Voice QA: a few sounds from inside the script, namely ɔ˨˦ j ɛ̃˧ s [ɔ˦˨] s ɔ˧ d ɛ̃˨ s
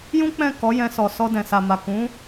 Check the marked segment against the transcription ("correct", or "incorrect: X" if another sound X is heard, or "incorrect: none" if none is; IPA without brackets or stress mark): incorrect: ɔ˨